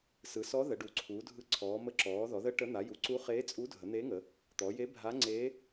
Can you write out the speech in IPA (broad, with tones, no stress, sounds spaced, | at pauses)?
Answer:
s ɯ˩˧ s ɔ˧˥ ð ə˩˧ ɖ u˩˧ ǀʰ uː˩˧ dʱ ɯ˧˥ ǀʰ ɔː˩˧ m ə˧˥ ǁ ɔː˩˧ ð ɔ˩˧ ð ə˧˥ ʈ ə˧˥ n̪ a˩˧ j u˩˧ ǀ u˧˥ χ eː˧˥ t͡sʼ u˧˥ dʱ ə˩˧ n̪ e˧˥ ŋ ə˩˧ | t̪ ɔ˩˧ j e˧˥ bʱ a˧˥ ŋ͡ǀ eː˧˥